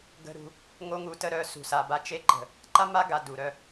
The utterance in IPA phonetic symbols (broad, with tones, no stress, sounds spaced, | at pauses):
ɡ ə̤˦ ɾ ṳ˧ | ŋ o˦ ŋ u˧ t ə˦ ɾ œ˧ s ṳ˨ s a˨ b a˧ t͡ʃ e˦ ǃ ə̤˨ | ǃ a˦ m a˦ ɡ a˨ d u˨ ɾ œ˧